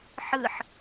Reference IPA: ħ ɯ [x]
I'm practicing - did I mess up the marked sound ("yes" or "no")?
yes